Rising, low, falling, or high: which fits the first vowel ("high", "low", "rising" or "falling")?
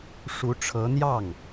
rising